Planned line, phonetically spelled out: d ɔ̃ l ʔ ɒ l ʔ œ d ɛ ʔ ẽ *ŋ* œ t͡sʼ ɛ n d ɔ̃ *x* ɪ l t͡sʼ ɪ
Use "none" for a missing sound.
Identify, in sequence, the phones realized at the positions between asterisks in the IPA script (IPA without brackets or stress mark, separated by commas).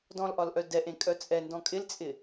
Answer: kʼ, kʼ